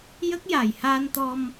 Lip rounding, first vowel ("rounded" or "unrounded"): unrounded